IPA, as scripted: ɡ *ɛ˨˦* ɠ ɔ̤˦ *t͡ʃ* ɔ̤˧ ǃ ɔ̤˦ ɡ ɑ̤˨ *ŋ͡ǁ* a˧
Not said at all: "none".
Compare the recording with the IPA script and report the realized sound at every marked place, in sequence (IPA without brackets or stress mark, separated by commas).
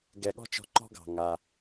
ɛ˨, t͡ʃ, ŋ